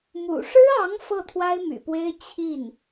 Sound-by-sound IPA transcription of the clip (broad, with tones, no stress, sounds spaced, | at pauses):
m ṵ˨˩ ʂ ɻ̩˥ ɑ˧˥ ŋ f ɤ˥˩ t̪ʰ w a˥ ɪ̯ m y̰˨˩ p w e˥ ɪ̯ t͡ɕʰ i˥˩ n